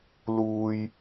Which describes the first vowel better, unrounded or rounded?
rounded